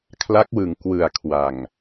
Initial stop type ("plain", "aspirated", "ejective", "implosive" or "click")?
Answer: aspirated